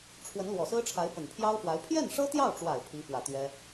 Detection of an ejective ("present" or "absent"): absent